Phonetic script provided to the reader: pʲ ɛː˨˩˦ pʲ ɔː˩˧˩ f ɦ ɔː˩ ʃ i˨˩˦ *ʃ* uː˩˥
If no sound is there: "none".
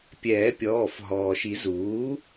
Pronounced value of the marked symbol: z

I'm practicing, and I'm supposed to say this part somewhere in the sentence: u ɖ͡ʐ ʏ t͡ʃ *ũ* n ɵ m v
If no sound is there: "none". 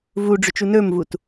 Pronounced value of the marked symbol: u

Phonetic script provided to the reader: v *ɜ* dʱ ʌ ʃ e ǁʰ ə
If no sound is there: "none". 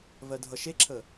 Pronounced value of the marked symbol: ɜ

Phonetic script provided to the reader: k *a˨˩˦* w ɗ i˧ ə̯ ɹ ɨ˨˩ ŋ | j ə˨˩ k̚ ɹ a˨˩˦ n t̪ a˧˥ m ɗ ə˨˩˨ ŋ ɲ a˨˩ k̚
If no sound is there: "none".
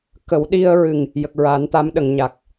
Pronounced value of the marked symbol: ə˨˩˦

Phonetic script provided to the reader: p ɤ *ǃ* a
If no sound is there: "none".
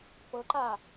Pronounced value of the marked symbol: ǃ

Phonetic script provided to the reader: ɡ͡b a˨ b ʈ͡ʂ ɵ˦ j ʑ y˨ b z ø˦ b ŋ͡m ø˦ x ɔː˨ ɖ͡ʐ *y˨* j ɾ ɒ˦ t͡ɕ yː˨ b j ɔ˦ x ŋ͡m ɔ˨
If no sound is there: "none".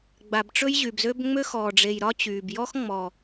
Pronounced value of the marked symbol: e˨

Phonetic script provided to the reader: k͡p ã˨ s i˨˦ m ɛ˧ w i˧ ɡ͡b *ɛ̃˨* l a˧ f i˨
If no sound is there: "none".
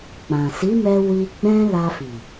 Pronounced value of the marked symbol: ɛ̃˦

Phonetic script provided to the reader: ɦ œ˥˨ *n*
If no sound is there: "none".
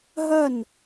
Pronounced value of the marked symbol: n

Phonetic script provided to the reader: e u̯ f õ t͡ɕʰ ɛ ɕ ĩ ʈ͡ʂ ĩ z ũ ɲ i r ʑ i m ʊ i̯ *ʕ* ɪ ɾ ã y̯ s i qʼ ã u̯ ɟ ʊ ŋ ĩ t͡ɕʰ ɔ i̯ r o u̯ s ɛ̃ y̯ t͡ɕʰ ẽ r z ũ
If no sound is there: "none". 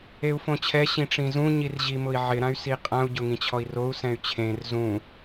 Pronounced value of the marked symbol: ʕ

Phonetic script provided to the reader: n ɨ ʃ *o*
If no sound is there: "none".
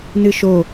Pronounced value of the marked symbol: o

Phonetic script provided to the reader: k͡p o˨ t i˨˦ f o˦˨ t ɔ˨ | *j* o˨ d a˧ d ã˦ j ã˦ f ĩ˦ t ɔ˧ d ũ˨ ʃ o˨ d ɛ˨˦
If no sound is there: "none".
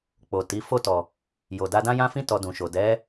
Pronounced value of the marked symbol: j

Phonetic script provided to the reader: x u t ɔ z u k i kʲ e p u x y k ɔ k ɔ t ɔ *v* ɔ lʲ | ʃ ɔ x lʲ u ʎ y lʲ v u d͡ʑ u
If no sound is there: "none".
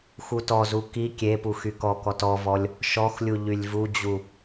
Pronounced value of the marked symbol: v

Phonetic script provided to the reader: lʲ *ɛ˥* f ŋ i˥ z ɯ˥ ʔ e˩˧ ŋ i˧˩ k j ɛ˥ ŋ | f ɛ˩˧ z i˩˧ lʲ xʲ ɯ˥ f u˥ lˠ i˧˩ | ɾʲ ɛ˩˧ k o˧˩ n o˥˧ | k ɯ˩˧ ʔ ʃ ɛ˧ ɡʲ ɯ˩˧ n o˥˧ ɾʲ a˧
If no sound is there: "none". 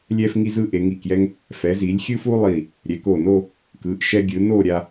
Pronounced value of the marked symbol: ɛ˥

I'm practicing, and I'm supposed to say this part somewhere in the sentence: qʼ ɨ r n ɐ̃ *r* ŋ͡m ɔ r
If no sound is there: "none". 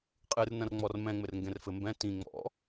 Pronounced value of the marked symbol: r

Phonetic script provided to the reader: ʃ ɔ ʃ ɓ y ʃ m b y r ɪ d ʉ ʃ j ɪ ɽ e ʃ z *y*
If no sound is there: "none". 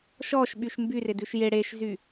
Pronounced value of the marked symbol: y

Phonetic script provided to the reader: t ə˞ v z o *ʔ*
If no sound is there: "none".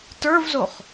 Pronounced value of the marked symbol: χ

